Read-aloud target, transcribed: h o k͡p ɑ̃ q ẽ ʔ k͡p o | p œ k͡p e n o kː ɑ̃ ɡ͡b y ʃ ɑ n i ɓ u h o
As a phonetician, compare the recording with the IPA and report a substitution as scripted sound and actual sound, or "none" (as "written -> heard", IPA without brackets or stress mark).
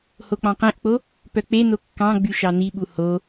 none